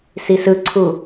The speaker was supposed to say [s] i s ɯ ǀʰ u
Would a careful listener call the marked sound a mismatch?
no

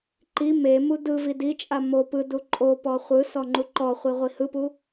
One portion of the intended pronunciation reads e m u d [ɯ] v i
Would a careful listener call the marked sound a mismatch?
no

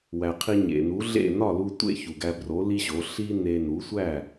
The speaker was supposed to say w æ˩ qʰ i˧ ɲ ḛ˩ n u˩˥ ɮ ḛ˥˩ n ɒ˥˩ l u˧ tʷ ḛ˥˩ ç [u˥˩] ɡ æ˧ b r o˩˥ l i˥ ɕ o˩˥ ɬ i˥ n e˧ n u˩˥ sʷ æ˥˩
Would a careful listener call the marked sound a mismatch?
yes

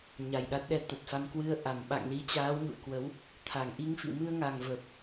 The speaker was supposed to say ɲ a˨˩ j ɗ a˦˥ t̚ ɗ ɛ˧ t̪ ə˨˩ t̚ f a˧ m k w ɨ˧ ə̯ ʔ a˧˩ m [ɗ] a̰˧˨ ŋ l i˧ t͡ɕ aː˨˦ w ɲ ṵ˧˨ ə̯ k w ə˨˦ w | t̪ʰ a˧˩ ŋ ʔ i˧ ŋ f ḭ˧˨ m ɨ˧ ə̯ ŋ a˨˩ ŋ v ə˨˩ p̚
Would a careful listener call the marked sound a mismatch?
yes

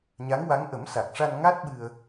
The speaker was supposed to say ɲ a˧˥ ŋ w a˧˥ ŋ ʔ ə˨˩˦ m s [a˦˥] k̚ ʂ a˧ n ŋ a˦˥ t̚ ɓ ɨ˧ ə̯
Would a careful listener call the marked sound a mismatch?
yes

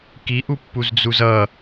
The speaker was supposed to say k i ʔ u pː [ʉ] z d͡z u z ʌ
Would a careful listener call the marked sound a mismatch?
yes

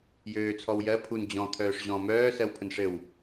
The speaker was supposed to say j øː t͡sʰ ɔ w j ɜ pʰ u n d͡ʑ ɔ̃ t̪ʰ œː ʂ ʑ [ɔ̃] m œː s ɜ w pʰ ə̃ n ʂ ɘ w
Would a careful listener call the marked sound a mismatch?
no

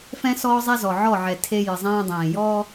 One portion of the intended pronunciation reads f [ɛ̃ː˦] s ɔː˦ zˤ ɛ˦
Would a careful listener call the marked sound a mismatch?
yes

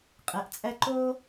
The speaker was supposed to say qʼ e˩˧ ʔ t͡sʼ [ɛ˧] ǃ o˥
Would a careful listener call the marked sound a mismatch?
no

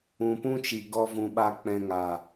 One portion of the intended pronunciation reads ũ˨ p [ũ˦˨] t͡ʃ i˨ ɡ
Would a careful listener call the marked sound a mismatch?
yes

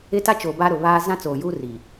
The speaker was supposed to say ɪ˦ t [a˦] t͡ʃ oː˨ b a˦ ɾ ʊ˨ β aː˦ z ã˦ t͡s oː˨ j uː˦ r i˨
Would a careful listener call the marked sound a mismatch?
no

